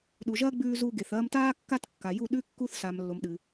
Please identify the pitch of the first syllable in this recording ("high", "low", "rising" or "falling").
low